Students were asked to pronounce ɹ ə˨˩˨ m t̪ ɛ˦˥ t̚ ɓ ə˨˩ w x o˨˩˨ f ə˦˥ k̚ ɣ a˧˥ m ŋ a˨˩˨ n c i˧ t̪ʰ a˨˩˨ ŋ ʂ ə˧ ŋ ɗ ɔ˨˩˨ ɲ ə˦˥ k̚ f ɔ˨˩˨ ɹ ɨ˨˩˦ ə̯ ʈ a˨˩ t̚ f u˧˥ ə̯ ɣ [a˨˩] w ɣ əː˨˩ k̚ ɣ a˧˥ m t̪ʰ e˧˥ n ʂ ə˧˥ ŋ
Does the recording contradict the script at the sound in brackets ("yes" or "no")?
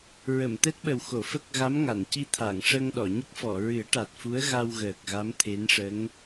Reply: yes